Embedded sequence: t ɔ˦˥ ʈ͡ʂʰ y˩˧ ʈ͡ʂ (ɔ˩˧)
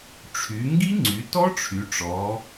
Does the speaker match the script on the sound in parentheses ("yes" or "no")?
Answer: yes